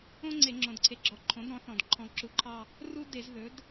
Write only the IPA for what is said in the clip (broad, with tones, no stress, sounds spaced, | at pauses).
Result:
õ˥ ŋ͡ǀ e˧˩˧ ŋ͡ǁ õ˩ d ǀʰ e˩˥ ɡ͡ǁ ɔ˩˥ ǃʰ õ˩˥ d ɾ ɔ̃˩˥ θ ɔ̃˩ d ǃʰ ɔ̃˩ ǁ u˩˥ ǃʰ ɑ˦˨ | r u˥ d e˧˩˧ z ð ɵ˩˥ d